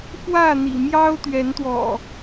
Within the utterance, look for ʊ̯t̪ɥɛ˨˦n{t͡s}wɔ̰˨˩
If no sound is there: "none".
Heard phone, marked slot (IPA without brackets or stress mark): t̪